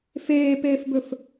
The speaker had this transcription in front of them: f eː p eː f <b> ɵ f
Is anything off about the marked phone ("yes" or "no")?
no